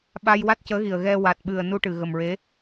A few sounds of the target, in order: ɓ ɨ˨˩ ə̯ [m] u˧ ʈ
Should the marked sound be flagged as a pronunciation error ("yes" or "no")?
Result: yes